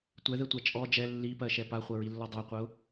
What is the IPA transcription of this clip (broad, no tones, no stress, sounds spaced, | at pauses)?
tʷ ɛ ð ɛ tʷ a t͡ʃʼ ɔ d͡ʒ ɛ lː i p ɜ ʃ ɛ p a χʷ ɜ ɹ i lː ɔ dˤ ɜ qʷ ɜ ʊ̯